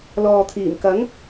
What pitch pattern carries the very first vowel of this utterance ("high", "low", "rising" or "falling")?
low